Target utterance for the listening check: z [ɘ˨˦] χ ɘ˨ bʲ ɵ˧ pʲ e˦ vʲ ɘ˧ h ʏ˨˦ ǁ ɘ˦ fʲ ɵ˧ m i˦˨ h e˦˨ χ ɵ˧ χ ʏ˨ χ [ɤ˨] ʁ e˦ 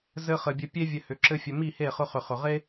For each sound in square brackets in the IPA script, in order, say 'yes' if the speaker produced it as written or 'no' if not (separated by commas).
no, no